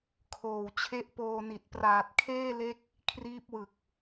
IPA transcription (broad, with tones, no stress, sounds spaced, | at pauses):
kʰ oː˨˩ w t͡ɕʰ e˦˥ ʔ p oː˧ n i˨˩ t̚ p r aː˨˩ t̚ kʰ eː˥˩ l e˦˥ k̚ | kʰ r iː˦˥ p̚ w ɯ˨˩ k̚